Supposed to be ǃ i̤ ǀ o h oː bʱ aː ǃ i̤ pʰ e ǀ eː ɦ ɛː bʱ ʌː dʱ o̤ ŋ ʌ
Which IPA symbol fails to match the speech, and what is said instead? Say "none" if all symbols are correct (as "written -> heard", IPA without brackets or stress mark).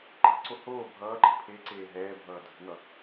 aː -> ʌː